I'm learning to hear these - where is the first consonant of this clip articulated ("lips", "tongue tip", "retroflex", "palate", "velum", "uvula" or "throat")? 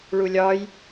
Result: retroflex